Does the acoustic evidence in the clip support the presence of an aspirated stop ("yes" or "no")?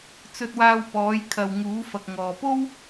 yes